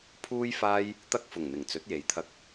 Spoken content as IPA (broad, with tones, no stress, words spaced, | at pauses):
pʰuː˥jfaː˥j | t̪ɐ˥k̚fʊ˨˩ŋ n̪ɪ˨˩ŋt͡sɵ˨˥t̚je˨˧jt̪ʰɐ˧k̚